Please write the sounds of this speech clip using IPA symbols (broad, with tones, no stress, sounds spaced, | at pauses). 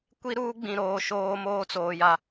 kʷ i˦ ɾ uː˦ ɡ͡b ĩ˨ ɾ oː˨ ʃ oː˦ m oː˦ t͡s oː˨ j a˨